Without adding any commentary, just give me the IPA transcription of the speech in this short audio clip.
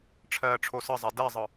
ʈ͡ʂʰɜːʈ͡ʂʰosəzˤɛ dɛzˤɯ

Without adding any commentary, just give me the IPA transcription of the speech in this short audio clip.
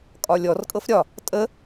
kʼɒlʲɔrkʼɤf ɾʲɒ | tʼə

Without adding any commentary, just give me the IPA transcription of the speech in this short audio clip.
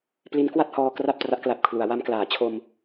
pli˦˥nkwa˥˩t̚hɔː˧ kra˥˩p̚tra˦˥ʔkla˨˩p̚kʰlu˩˦a̯ wa˧mklaː˩˦t͡ɕʰo˧m

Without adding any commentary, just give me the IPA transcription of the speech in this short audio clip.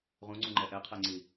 ʁũŋ͡ǀũŋ͡ǃɛ ʔɛqʰɛŋ͡ǀi

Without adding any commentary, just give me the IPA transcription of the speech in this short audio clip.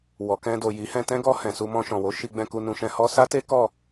wɔ˨kɛ̃˧ do˨ji˨˦ hɛ̃˧tɛ̃˦ɡɔ˧hɛ̃˨ su˧mɔ̃˧ʃɔ̃˨wo˨˦ ʃi˧ɡ͡bɛ̃˧ku˧nũ˧ ʃɛ̃˧hɔ˦ sa˦te˦ kɔ˦˨

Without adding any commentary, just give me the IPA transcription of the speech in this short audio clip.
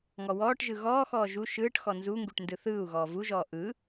ŋɔwɔːʈʒɯ ɣɔːxɔː ʒu ʃɯːʈxɔ nzuŋɡuʈ ndɯθɯːu̯ɣɔː vuʒɔː ʔɯ

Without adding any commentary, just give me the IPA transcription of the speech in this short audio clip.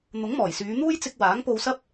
n̪ʊ˨˥ŋmɔː˨˩jsyː˨˧n̪uː˥j t͡sɪ˧k̚ waː˨˥ŋpo˧wsɐ˥p̚

